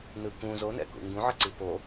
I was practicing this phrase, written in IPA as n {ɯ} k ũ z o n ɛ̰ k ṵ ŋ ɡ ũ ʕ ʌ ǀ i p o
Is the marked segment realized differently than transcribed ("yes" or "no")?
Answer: no